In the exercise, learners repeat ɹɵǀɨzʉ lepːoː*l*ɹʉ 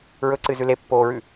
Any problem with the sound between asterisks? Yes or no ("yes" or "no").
yes